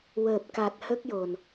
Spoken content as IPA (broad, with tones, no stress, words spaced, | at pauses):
wəː˨˩p̚ka˨˩t̚ hə˦˥k̚jo˨˩n